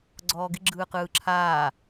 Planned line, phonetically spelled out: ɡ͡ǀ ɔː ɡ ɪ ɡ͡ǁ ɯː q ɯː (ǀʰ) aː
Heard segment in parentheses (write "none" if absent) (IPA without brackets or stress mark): ǁʰ